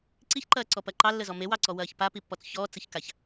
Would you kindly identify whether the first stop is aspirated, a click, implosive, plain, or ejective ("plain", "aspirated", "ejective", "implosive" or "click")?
click